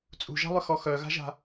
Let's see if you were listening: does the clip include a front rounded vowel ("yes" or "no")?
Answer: yes